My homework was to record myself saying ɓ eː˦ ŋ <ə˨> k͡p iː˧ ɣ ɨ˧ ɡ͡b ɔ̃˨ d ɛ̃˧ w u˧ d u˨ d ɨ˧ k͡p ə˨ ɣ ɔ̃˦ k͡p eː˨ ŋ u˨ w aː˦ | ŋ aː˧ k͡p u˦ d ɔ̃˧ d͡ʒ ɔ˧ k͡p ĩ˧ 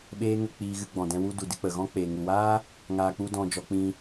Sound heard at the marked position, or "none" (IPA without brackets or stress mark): ə˧